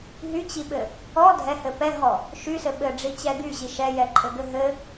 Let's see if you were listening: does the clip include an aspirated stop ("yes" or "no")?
no